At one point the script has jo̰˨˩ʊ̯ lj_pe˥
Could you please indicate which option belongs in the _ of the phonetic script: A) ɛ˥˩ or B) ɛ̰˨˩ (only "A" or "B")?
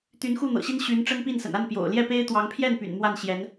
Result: A